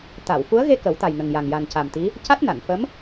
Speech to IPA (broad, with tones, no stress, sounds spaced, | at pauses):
t̪ a˨˩˨ w f u˧˥ ə̯ ɣ e˧ k ə˨˩˦ w t̪ a˨˩ j n ə˨˩ ŋ j a˨˩ ŋ j a˨˩ n c a˨˩ m t̪ i˧˥ | c a˦˥ t̚ n a˨˩˨ n f ə˧˥ m